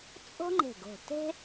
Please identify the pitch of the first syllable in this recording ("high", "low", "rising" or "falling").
high